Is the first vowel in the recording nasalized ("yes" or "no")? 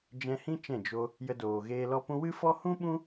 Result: yes